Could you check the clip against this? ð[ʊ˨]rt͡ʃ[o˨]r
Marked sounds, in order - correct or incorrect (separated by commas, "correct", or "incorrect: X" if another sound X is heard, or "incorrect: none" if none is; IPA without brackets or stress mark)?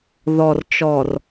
incorrect: ɔ˨, incorrect: ɔ˨